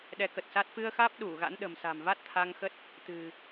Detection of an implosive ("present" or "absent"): present